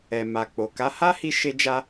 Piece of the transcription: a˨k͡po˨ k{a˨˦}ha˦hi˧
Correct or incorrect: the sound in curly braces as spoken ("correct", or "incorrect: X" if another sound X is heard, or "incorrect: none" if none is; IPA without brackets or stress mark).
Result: correct